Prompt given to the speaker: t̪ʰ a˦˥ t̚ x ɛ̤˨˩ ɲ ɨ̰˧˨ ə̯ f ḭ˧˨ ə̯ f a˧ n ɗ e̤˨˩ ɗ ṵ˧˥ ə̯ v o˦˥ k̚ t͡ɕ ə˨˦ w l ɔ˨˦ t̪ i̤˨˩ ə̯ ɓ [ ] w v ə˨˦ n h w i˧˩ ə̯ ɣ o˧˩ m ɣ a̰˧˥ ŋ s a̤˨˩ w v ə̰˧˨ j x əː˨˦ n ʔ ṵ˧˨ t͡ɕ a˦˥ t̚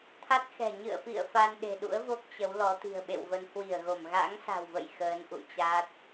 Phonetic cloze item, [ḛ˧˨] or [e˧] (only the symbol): ḛ˧˨